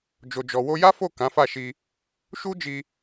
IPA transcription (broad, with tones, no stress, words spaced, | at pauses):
d͡ʒo˨d͡ʒɔ˨ wo˧ja˦fo˦˨ kã˨˦fa˦˨ʃi˧ | ʃu˦ d͡ʒi˧